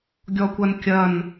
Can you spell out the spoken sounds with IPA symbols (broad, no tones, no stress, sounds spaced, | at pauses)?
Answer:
ɡʲ ɔ kʷ ɐ n kʲ ɐ n